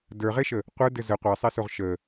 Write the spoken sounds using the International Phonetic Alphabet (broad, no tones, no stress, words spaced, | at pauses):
də˞ʁeʃə | qʷə˞dɘ zə qʷɛsˤesoʁ ʃə